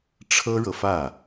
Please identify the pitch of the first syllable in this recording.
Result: high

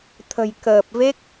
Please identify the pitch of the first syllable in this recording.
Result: low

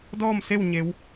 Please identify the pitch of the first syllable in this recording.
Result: falling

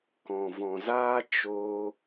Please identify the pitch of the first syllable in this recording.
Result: low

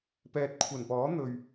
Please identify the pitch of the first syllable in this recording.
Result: low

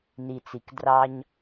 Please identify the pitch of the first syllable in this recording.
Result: low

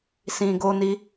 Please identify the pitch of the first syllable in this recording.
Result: low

